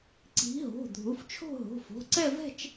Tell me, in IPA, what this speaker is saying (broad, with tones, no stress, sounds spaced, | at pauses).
ǀ i̤˨˦ ɦ o̤˩˧˩ dʱ u˩˧˩ f t͡ʃʰ o̤˥˧ ɦ o̤˩˧˩ f o̤˩˧˩ ǀ ɛ˥˧ v ɛ̤˥˧ t͡ʃ